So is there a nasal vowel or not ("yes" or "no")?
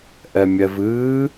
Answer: no